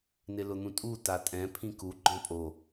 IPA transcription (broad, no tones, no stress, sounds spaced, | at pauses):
n ɪ l ʊ n̪ ũ tʼ u t a tʼ ɛ̃ pʰ ĩ k u ɡ͡ǃ ɔ̃ pʼ o